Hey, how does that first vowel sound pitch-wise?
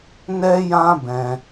high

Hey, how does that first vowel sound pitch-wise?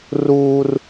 high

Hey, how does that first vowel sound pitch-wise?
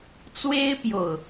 high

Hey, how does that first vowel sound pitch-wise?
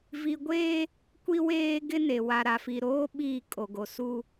high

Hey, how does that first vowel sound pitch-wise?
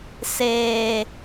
low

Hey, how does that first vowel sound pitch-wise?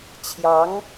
rising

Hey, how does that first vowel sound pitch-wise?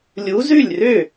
rising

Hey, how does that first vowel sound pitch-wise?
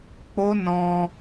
high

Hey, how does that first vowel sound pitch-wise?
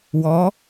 rising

